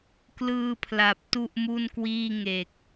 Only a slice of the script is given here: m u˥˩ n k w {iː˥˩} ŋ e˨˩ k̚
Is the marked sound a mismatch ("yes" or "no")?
no